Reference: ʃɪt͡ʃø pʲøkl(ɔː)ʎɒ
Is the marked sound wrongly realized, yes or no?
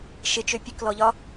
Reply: yes